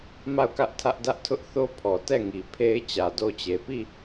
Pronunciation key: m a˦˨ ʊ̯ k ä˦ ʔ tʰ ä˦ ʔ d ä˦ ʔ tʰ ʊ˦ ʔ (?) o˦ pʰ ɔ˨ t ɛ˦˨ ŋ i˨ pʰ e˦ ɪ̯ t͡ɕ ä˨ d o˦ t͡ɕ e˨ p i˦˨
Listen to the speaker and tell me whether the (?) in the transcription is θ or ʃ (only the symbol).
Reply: θ